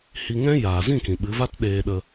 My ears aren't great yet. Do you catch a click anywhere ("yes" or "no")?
no